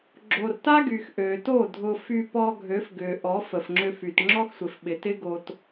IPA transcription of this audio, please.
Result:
ɡ͡ǁ o˨ r t a˦ ɡ y˨ x ʔ ø˨ t o˦˨ dʱ ʊ˧ f y˧ p ɔ˧ ɡʱ ø˨˦ f ɡ ʏ˨ ʔ ɔ˨˦ f ə˨ f ŋ͡ǁ ʏ˧ f y˨ t ŋ͡ǁ ɔ˦ x sʷ ɪ˨ f ɓ ɪ˨ t ɪ˦ ɡ o˧ t

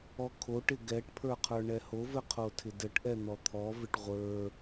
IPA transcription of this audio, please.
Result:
ɔ kʰ o ʈ ɪ ɡ ɛ ʈ pʰ ə˞ qʰ ə˞ ɳ ɛ h o v ɘ qʰ o tʰ ɪ d ɘ ʈ ʔ ɛ n̪ ɔ t̪ʰ ɔ v ɪ ʈ ʁʷ ə˞

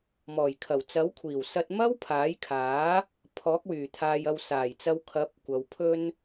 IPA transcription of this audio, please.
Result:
m ɔː˨˩ j kʰ ɐ˨˩ w t͡s ɐ˨˥ w kʷʰ iː˨˩ w s ɐ˧ t̚ m ɐ˥ w pʰ aː˨˥ j kʰ aː˨˥ | pʰ ɔː˨˥ k̚ w yː˨˩ t̪ʰ aː˨ j ɐ˨ w s aː˨˩ j t͡s ɐ˧ w kʰ ɐ˨˥ p̚ kʷ ɐ˨ w pʰ ɵ˥ n

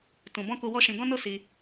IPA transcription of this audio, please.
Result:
t ũ˨ b ɔ̃˧ k u˧ w ɔ˦ ʃ ĩ˧ ɡ ɔ̃˦ n o˦ s i˧

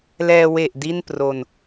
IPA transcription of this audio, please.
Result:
l ɛː˧ w e˨˩ ʔ d i˥˩ n p r o˧ n

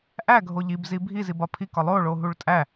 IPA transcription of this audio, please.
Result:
ʔ æ ɡʱ o ʎ i b z i bʱ i z i b ɒ pʰ i k ɒ lˠ o ɭ o ɦ u ɭ tʼ æ

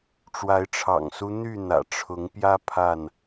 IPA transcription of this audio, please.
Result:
ʈ͡ʂ w a˨˦ ɪ̯ ʈ͡ʂʰ ɑ̰˨˩ ŋ s u˦ n̪ y˥˨ n̪ ä̰˨˩ ʈ͡ʂʰ ʊ˨˦ ŋ p j ä˦ pʰ a˥˨ n

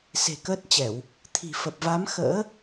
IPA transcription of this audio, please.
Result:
s e̤˨˩ k əː˦˥ t̚ t͡ɕ ɛ˧˩˨ w | t̪ʰ i̤˨˩ f ə˨˩ p̚ v a˨˦ m x ə̰ː˧˥

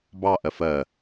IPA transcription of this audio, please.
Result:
b ɑ ʔ ɜ f ɜ

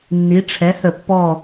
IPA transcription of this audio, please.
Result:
nː i˩˧ ʈ͡ʂʰ ɛ˩˧ h ə˧˩˧ pː ɔ˦˨

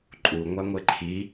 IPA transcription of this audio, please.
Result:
ǃʼ u ŋʷ a ŋʷ e ǃʰ i

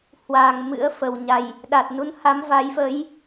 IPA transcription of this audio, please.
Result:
h w aː˨˩ ŋ m ɨ̰˧˥ ə̯ f ə˨˩ w ɲ a˨˩ j | ɗ a˨˩ t̚ n u˨˦ n h a˨˦ m v a˨˦ j f ə˨˦ j

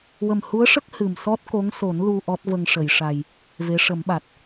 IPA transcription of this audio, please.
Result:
w ə˨˩ m h u˧˥ ə̯ ʂ ə˦˥ k̚ h ɨ˨˩ m s ɔ˦˥ t̚ k o˧˥ ŋ s o˨˩˦ n l u˧ ʔ ɔ˦˥ t̚ v ə˧ ŋ ʂ ə˨˩˨ j ʂ a˨˩ j | v e˧˥ ʂ ə˨˩˦ m ɓ a˨˩ t̚

